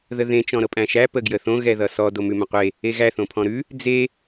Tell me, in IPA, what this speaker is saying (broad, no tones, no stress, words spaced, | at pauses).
ðəðẽ t͡ʃɔ̃ɾɤpʼæ̃ʃæ pəɡjəθõ ɣɛðʌsɔ domʉmə̃qʷe | eɣæ θõpʰɔ̃ɾʉ | d͡ze